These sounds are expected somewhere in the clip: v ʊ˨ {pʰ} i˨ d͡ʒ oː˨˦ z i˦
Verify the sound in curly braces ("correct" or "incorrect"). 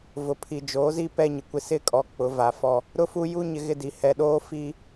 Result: correct